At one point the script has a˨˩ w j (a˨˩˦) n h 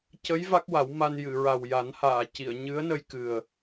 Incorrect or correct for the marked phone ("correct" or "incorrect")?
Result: correct